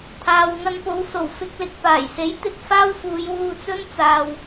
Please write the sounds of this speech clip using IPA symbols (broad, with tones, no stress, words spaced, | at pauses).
t̪ʰaː˨wŋɐ˧npo˨˧w so˨˩wfɪ˧k̚lɪ˨k̚ paː˨˩jse˨˥j t̪ɪ˧k̚faː˥wfuː˨˧j wuː˧t͡sɵ˥n t͡saː˨w